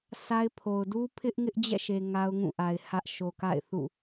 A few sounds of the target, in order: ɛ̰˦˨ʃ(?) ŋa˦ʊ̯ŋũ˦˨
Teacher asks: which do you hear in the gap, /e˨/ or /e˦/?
e˨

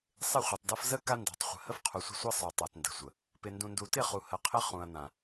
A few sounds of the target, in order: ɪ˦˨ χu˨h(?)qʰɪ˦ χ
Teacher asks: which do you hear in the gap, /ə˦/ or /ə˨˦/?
ə˨˦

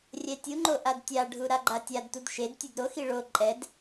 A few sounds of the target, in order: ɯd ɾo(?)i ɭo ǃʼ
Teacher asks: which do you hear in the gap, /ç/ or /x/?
x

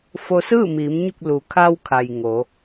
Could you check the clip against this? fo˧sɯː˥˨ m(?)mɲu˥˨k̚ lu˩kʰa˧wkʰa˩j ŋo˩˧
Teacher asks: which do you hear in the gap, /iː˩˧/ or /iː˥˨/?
iː˩˧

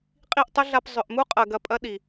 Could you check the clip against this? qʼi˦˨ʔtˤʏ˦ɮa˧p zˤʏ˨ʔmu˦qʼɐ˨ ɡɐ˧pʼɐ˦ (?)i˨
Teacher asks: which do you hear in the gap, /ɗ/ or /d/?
ɗ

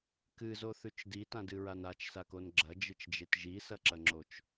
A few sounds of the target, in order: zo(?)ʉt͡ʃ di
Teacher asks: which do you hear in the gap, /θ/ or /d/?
θ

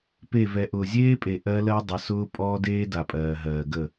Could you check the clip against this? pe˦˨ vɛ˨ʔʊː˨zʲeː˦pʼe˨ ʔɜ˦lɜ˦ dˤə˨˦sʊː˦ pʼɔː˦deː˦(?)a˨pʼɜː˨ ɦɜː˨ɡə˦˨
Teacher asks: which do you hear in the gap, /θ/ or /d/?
d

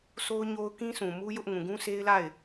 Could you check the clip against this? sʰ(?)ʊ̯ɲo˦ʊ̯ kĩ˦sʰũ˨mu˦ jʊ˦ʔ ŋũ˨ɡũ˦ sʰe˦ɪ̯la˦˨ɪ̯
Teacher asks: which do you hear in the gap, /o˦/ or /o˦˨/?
o˦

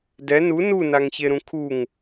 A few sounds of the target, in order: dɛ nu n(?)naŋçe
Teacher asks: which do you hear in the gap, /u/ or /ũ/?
u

